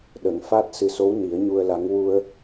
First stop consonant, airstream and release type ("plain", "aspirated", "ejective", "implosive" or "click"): implosive